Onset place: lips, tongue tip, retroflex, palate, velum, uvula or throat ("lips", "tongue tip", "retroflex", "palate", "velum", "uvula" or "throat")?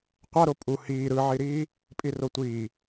uvula